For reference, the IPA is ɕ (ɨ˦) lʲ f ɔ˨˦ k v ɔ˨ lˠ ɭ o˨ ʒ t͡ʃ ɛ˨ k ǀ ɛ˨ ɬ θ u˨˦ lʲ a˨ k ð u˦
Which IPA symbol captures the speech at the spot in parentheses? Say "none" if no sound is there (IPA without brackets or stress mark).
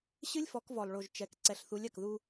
ɨ˦